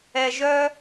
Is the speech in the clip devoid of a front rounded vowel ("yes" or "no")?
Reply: no